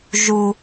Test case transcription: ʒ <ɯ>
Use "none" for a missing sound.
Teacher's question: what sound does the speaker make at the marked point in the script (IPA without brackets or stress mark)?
u